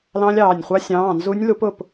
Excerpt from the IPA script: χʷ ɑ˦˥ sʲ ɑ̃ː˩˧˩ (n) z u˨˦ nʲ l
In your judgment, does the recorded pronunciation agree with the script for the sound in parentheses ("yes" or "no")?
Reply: yes